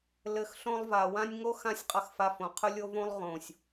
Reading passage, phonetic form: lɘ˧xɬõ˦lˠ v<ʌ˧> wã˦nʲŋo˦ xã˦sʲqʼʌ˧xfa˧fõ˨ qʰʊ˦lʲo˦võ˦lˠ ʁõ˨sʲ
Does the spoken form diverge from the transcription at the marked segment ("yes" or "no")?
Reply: yes